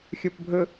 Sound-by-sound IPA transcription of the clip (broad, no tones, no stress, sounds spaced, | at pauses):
xʲ o p bʱ ɵ